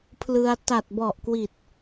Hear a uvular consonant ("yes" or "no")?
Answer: no